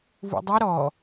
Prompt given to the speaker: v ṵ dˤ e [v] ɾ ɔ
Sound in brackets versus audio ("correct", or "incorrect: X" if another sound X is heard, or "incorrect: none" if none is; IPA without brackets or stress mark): incorrect: none